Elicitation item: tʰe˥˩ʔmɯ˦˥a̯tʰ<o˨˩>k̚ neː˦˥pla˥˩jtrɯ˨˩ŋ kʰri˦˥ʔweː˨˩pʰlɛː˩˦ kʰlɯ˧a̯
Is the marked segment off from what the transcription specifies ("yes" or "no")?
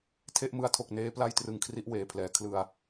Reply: no